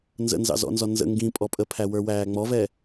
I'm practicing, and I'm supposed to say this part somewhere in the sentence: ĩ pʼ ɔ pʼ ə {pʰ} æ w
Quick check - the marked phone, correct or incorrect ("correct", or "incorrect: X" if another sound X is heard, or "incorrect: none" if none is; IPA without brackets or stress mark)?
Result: correct